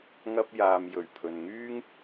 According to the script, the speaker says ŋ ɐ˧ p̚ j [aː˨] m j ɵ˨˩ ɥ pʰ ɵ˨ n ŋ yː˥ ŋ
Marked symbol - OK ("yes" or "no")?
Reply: yes